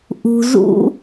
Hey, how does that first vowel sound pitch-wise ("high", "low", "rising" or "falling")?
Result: low